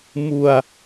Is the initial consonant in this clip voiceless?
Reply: no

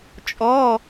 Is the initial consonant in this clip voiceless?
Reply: yes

